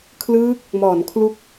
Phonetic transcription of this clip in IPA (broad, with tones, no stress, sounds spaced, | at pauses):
kʰ l ɯː˦˥ k̚ | m ɔː˩˦ n kʰ l u˦˥ k̚